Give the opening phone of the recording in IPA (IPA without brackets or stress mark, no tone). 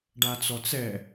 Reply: ɖ